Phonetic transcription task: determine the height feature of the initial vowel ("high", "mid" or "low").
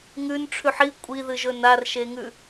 high